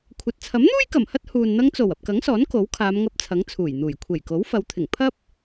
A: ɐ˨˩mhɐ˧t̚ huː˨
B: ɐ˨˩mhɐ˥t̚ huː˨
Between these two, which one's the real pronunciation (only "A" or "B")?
B